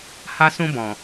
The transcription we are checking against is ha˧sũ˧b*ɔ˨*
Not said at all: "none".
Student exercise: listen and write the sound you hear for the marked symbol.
ɔ̃˨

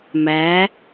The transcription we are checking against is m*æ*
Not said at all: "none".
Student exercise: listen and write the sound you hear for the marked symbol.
æ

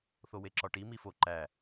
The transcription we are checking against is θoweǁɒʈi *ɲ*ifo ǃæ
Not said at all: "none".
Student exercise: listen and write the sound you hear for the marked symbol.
m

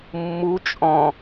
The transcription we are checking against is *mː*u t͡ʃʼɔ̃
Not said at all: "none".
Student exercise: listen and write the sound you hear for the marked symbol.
mː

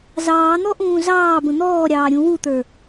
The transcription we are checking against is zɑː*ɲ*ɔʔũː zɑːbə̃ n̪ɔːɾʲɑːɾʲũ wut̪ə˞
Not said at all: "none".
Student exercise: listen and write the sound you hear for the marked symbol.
n̪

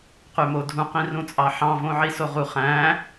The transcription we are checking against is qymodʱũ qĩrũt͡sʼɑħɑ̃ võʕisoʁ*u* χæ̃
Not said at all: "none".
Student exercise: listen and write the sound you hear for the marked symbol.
u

